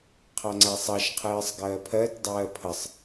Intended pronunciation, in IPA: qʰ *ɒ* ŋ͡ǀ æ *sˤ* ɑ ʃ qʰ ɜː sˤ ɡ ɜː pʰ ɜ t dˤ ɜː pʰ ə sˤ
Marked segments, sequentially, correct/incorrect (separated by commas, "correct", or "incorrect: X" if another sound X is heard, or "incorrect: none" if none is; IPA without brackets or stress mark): incorrect: ɑ, correct